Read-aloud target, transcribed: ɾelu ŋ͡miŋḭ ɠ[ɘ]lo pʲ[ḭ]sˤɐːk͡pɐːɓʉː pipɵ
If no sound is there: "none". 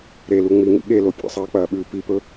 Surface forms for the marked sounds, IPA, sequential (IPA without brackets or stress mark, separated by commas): e, ḛ